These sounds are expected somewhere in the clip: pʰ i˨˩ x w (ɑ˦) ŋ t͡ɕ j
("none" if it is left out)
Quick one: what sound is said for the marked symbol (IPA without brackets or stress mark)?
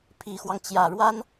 ɑ˦